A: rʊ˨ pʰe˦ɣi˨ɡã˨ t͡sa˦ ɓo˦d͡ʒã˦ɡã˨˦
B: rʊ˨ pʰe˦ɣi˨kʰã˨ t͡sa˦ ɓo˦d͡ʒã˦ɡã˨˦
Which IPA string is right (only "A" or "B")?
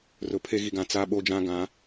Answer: A